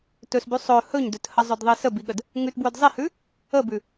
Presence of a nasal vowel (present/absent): absent